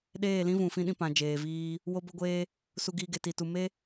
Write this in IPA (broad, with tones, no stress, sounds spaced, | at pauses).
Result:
ɗ eː˦˨ l ĩ˦ v ũ˨ f ĩ˦ ɗ ĩ˧ p ã˨ d͡ʒ eː˨ v iː˧ | w o˧ b ə˧ ɡʷ eː˧ | s u˧ ɡ iː˧ ɡ e˨ t i˨ t u˨ m e˦